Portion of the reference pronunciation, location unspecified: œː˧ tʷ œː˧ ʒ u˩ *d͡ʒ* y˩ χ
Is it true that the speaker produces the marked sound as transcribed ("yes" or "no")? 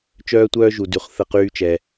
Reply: no